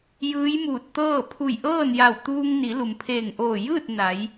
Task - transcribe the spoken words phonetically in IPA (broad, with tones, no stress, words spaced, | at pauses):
jɯː˧˥jmuː˧˩t̚t̪ɤː˥˨ pʰu˧˩jʔɤː˥˨nja˧˩w t̪uː˧ŋni˩˧ lu˩mpʰeː˧˩ŋʔoː˧˩ jɯː˥˨t̚ na˩˧j